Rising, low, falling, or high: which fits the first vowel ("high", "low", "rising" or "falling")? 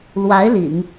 rising